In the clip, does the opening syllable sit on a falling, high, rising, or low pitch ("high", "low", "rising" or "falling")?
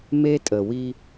high